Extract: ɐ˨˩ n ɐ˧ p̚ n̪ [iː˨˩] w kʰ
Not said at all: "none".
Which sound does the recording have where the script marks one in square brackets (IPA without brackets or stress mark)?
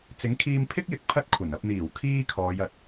iː˨˩